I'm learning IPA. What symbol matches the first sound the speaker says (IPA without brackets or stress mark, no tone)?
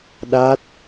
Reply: ɗ